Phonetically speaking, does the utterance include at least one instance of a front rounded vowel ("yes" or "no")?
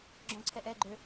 yes